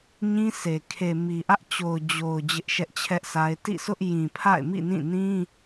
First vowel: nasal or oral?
nasal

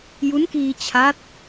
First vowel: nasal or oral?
oral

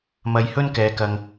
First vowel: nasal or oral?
oral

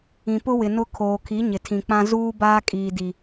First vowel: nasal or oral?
nasal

